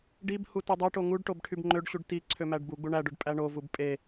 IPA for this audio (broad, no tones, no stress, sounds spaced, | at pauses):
ɖ i b h u t u dˤ o ʈ o ŋ u ɖ ʈ o b ʈʰ y b ŋ͡ǃ ø ɖ ɕ u ɖ t i ǀʰ ø m æ ɖ b u ɡ͡b u ɳ æ ɖ ø ɖ pʼ æ ɳ o v u b pʼ e